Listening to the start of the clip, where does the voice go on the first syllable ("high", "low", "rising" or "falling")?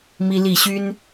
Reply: high